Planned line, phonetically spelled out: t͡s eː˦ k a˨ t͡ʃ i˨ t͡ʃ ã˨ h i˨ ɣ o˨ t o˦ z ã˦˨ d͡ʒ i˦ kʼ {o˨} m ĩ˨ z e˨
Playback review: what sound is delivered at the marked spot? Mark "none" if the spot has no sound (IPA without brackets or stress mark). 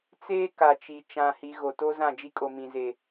o˨